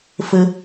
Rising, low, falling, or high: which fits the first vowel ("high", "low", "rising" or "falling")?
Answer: high